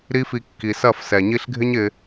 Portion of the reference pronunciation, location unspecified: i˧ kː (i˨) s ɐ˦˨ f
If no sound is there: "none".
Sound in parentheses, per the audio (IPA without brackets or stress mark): i˨